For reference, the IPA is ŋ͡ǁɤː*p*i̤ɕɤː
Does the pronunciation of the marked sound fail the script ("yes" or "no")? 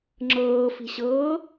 yes